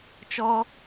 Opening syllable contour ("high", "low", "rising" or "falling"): high